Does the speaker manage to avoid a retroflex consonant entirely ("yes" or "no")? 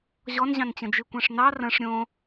no